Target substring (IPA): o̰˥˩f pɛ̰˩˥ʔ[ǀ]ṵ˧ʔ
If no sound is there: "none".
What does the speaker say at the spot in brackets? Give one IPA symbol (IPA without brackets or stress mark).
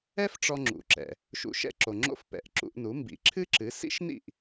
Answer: ǁ